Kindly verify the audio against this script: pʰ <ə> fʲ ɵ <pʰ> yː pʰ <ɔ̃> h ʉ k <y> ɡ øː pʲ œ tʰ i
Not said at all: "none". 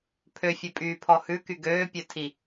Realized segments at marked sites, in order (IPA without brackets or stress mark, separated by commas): ø, pʼ, ɔ, y